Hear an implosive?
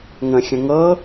no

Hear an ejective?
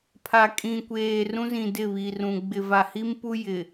yes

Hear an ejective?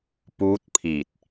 no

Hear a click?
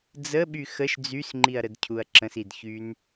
yes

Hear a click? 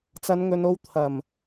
no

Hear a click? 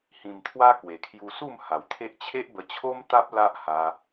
no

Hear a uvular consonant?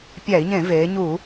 no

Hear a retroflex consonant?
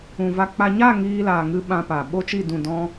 no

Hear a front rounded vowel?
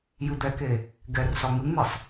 no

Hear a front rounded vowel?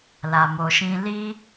no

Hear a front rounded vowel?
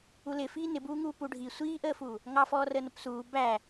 no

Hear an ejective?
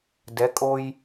yes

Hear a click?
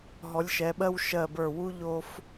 no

